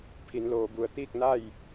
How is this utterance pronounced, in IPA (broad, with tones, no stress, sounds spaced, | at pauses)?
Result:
pʰ i˩˧ n l oː˩˧ b u˩ ə̯ t̪ iː˥˨ k̚ n a˥˨ j